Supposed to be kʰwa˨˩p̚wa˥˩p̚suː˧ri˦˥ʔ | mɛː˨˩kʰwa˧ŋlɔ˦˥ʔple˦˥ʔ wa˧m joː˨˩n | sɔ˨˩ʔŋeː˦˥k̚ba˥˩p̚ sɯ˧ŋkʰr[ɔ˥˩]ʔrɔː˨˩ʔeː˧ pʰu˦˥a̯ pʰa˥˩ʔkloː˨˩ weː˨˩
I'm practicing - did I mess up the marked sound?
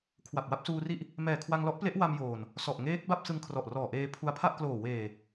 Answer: yes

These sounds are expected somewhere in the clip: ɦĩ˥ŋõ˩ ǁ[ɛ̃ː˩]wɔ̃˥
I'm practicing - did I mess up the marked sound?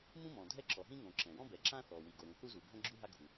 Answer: yes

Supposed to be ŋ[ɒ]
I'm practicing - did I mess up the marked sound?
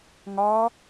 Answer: no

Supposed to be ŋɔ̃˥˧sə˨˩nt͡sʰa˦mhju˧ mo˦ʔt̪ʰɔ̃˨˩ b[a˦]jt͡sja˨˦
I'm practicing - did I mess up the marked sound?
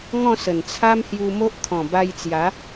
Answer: yes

